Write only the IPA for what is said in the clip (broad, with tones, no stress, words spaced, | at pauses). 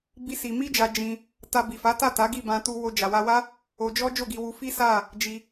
bi˦si˧ mi˦d͡ʒa˧ d͡ʒĩ˧ | ta˧bi˨fa˨˦ta˦˨ ta˨˦ɡi˦˨bã˧tu˧ wo˧d͡ʒa˨wa˧wa˦ | o˧d͡ʒɔ˦ d͡ʒo˦˨ɡi˧wu˧fi˦ sa˦˨ | d͡ʒi˧